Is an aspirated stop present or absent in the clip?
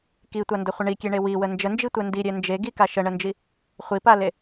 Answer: absent